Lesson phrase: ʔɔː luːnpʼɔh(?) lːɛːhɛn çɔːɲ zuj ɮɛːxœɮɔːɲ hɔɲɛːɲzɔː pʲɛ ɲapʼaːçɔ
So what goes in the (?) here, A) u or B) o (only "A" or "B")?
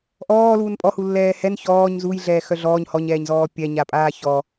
A